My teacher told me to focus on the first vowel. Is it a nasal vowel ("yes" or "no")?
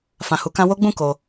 yes